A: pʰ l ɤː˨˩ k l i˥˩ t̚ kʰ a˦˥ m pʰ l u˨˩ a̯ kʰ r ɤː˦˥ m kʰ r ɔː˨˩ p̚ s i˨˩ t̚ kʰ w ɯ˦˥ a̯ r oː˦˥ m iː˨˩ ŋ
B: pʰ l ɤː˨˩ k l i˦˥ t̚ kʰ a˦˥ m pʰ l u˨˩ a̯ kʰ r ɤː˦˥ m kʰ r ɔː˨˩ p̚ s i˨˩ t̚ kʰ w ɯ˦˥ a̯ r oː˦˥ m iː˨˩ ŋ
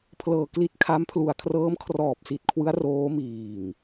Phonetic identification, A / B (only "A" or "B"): B